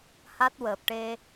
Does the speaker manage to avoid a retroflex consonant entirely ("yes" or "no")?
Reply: no